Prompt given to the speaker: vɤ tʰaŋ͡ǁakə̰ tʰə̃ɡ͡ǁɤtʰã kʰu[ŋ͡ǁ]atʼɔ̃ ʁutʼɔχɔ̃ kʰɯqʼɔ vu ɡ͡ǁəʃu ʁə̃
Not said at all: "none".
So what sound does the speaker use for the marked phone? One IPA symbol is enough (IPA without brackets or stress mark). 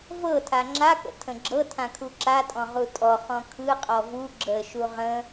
ǁ